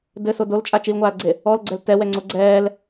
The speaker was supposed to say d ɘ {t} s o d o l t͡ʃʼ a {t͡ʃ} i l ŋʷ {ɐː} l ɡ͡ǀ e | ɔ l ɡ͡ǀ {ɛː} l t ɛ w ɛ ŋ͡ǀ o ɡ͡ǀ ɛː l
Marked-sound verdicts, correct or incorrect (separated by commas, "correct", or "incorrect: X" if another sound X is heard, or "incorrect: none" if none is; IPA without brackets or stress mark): incorrect: none, correct, incorrect: aː, incorrect: ɛ